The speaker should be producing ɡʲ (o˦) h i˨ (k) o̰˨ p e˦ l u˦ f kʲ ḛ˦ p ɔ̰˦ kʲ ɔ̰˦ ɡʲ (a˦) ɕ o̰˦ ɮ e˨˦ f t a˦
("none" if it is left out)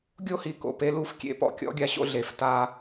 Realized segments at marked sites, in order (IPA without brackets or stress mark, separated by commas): o˦, k, a˦